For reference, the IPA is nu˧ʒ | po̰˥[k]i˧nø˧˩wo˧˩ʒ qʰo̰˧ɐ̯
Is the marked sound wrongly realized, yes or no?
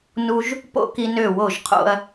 no